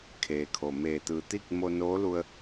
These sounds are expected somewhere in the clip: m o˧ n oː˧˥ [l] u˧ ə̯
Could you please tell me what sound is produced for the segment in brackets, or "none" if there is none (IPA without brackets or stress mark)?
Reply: l